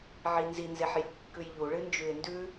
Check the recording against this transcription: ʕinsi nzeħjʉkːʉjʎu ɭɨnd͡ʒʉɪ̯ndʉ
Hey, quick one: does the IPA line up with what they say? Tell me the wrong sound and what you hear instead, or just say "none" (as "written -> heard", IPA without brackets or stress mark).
s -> z